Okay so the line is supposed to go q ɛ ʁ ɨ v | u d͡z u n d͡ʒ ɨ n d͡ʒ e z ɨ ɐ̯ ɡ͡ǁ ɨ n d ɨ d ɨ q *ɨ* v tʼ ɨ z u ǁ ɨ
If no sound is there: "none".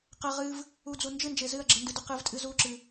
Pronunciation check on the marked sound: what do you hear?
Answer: ɨ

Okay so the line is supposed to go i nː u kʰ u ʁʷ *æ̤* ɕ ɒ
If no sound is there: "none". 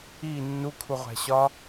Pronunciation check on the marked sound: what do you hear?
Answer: æ̤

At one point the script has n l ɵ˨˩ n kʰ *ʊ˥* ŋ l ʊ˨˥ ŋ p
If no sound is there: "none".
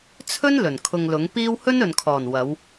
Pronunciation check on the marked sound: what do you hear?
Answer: ʊ˧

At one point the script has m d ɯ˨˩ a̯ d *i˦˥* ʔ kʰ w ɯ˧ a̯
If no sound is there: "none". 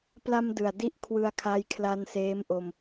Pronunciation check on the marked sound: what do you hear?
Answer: i˥˩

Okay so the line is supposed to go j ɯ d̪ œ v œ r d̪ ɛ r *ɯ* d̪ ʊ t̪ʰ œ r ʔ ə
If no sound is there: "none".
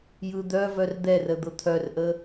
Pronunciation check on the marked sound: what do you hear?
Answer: ə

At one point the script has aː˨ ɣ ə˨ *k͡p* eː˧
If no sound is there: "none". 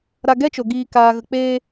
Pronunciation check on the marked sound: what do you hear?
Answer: k͡p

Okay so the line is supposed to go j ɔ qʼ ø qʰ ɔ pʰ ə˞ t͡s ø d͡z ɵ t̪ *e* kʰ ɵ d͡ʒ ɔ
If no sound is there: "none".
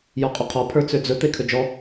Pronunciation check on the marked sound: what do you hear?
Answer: e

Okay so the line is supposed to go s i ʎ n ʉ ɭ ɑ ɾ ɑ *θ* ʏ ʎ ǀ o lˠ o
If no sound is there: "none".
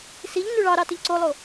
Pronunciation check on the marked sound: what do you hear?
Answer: t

